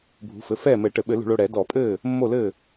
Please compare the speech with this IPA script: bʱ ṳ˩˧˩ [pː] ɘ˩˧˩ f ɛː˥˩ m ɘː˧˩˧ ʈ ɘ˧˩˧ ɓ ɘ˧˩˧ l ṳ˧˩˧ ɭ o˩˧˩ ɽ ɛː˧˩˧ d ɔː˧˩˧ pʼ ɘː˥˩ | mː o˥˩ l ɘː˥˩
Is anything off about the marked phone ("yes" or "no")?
yes